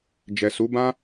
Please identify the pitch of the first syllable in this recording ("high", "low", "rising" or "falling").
low